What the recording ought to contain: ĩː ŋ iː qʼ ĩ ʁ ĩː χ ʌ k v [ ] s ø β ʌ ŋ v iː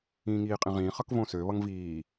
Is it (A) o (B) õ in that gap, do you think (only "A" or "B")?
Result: B